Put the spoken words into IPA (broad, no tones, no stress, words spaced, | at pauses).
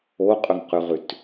oqʼɵŋqʉʁʉt